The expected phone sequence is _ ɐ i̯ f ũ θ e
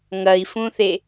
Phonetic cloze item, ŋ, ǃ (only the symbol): ŋ